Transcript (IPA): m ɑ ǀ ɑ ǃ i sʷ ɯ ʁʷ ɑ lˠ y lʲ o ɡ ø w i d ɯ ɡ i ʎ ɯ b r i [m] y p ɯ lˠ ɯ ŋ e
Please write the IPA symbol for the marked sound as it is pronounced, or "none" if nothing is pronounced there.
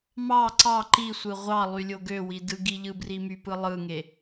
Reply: m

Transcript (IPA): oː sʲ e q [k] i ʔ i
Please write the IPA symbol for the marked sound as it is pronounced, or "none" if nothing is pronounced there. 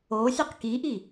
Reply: k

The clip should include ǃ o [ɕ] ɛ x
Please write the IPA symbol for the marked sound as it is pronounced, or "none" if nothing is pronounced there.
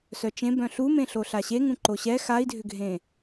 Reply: ɕ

